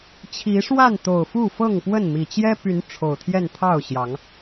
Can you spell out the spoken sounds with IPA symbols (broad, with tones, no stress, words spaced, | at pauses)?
t͡ɕʰi˨˦ʂwa˥˨n t̪o˨˩ʊ̯fu˥˨ fɤ˥˨ŋpwə˥˨nmi˨˩ t͡ɕjɛ˦py˨˦n ʈ͡ʂʰo˨˩ʊ̯t̪ʰjɛ˥˨n t̪ʰɑ˥˨ʊ̯ɕjɑ˨˦ŋ